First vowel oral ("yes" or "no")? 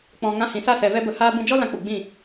no